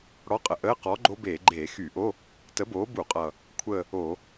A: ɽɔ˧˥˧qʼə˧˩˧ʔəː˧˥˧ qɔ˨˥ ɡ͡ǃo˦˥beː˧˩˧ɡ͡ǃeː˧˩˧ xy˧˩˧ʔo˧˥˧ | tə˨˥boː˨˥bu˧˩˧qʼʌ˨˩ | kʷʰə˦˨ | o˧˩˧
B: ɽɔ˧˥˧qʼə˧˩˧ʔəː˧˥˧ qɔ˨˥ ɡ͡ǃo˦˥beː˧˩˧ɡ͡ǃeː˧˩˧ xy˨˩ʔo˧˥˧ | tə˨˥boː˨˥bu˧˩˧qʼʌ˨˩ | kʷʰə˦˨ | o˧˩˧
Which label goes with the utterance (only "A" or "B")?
A